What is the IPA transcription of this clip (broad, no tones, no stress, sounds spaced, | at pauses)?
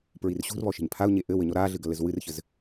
p ɹ i r ɕ ṳ r β ɔ ʃ e̤ ɲ pʰ a ʊ̯ ɲ e ʔ ɘ w ɘ ɲ ɔ ɾ a ɮ ɨ ɡ ɐ l ɘ z w ɨ r ç ɘ z